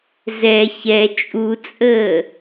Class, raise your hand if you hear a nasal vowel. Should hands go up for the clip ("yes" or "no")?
no